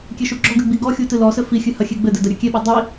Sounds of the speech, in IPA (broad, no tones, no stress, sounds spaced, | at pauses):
kʲ e ʃ u ɡ͡ǁ ɔ ɡ ɨ ɡ͡b i ɡ ɔ xʲ u t ɨ l ɔ s ɘ f i xʲ ɨ h ɐ xʲ e ɡ͡b ɘ d ɘ d ɐ ɾʲ ɐ kʲ e ɓ ɔ dˤ i